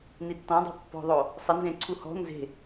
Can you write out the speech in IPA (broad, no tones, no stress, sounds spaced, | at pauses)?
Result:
n i tː ɔ̃ dˤ e̤ pː ɔ̤ ðˤ o | sˤ ɪ n z ẽ ǀʰ u h ɔ̤ n z e̤